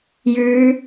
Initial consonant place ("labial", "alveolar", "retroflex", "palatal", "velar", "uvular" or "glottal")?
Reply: palatal